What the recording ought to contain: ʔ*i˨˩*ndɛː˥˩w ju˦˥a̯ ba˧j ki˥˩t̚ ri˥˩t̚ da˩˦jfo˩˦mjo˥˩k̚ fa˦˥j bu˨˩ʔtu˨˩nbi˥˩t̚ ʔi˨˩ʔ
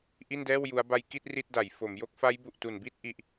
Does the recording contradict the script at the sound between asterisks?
yes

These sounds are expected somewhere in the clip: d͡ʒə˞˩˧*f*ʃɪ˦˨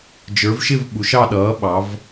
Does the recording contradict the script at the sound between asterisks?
yes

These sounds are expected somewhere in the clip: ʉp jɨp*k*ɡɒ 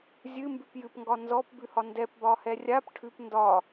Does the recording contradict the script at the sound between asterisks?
yes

